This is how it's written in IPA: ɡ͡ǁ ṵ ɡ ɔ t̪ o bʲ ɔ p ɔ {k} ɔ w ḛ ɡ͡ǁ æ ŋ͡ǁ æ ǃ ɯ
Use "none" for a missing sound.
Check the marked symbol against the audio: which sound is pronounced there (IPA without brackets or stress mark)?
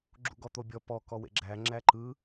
k